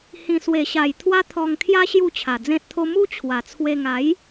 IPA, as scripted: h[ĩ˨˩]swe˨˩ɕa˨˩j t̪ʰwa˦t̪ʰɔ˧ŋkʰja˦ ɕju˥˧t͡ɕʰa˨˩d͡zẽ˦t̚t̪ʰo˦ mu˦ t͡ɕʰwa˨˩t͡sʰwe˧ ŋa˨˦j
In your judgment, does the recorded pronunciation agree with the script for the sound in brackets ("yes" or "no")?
yes